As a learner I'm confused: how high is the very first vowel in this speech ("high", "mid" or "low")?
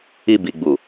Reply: high